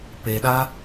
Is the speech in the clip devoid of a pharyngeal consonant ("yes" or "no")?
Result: yes